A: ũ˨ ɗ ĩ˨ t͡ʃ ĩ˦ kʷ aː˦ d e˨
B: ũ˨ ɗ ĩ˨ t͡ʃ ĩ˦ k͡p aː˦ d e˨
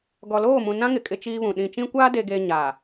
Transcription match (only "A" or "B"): A